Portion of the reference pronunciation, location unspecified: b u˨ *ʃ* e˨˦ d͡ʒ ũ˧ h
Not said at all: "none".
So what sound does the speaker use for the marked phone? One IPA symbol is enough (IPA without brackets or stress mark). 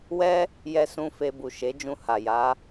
ʃ